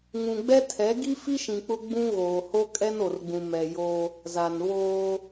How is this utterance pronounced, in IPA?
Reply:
ŋ ũ˨ ɡ͡b ɛ˦ tʰ ɛ˨˦ ɡ i˦ f i˦ ʃ ĩ˨ k͡p ʊ˦ ɡ͡b ũ˦ ɣ oː˨ h o˦ kʼ ɛ˦ n o˨ r ɡ͡b ũ˨ m ɛ˨ j o˦ | z a˨ n β oː˦

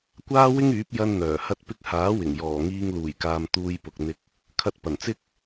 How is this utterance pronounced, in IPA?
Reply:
kʷ aː˥ w ɪ˥ ŋ yː˨˥ p̚ j ɐ˧ n n̪ œː˨˩ h ɐ˧ t̚ p ɪ˧ k̚ h aː˨˥ w ɪ˨˩ ŋ j ɔː˨˩ ŋ iː˧ ŋ l uː˨˩ j k aː˨ m t̪ uː˧ j p ʊ˨ k̚ n̪ ɪ˧ k̚ | kʰ ɐ˧ t̚ p ɐ˨˩ n t͡s ɪ˥ k̚

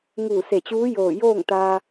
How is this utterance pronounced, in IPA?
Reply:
ŋ uː˧˩ s e˧˩ t͡ɕ uː˧˥ j oː˧˩ j oː˥˨ ŋ t̪ aː˧

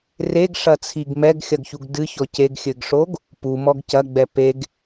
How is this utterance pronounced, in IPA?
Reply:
r e ɡ ʂ ɐ t͡sʰ i ɡ m ɛ ɡ xʲ ɐ ɡ ç u ɡ d ɨ ç ɔ c e ɡ xʲ ɘ ɡ ʂ o ɡ | p u m ɔ ɡ c ɐ ɡ͡b ɛ p e ɡ

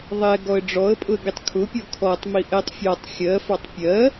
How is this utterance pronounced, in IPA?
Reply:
ðˤ ɛ ɡ ɔ ə̯ ɖ͡ʐ ɔ ə̯ pʼ ʊ ə̯ ɡ i tˤ kʰ ʊ pʲ ɔ kʰ ɔ tˤ m i ʔ ɛ tˤ fʲ ɒ tˤ xʲ ɜ f ɑ tˤ pʲ ɜ

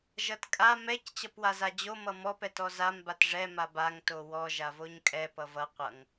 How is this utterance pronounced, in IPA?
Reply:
ʒ ʌ t kʼ a m ɛ c t͡ɕ ʌ p w a z a d͡ʑ o m ʌ m ɔ p ɛ t ɔ z a m b a t ʐ ɛ m a b a ŋ t o w ɔ ʒ a v o ɲ kʼ ɛ p ʌ v ʌ qʷ ʌ ŋ

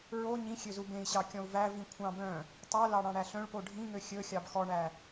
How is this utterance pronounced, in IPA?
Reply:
ɹ o ɲ ĩ xʲ ø z u b ẽ i̯ ɕ ɑ kʲ ɔ̃ u̯ v æ v ĩ kʷʰ ɑ̃ b œ̃ | tˤ ɵ l ɑ ɽ ɑ̃ ɽ æ ɬ œ̃ ɭ p o ɖʱ ĩ ŋ ø xʲ ɵ xʲ ɑ b x ɔ ɳ æ

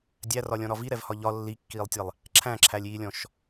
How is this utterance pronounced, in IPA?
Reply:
dʲ æ r ɒ lʲ ɔ̃ ɾ ɒ v i ɾ ɛ v h ɒ ʎ ɒ lː i kː iː lˠ tʲ ɛ lˠ | ǁʰ æ̃ ǁʰ æ lʲ iː lʲ ɔ̃ ʃ

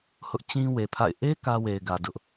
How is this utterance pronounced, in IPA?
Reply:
h ʊ˦ ʔ t͡ɕ ĩ˦ w e˨ pʰ a̰˦˨ ɪ̯ ʔ e˦ k ä˦ w e˨ ɪ̯ ɡ ä˨ d ʊ˦ ʔ

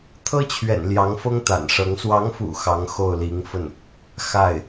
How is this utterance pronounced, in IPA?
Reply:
t̪ʰ ɤ˥ t͡ɕʰ ɥ ɛ̰˨˩ n l j ɑ˧˥ ŋ f ɤ˥ ŋ t̪ a̰˨˩ n ʂ ɤ˧˥ ŋ s w ɑ˧˥ ŋ f ṵ˨˩ x ɑ˧˥ ŋ x o˥˩ ʊ̯ l i˧˥ ŋ f ə˥˩ n | x a˥˩ ɪ̯

